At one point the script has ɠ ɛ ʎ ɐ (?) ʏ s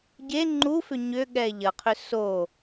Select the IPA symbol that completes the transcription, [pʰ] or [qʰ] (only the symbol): qʰ